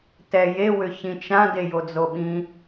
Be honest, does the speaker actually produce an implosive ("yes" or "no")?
yes